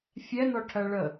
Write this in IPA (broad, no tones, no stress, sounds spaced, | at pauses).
fʲ ɛ n ɔ ʈʰ ɜ ɭ ə